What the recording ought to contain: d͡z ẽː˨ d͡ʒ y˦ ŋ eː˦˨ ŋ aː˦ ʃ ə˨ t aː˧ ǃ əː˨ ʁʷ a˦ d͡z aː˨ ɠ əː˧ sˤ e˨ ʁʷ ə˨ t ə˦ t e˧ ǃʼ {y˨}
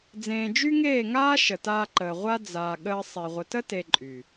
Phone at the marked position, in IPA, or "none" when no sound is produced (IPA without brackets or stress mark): y˨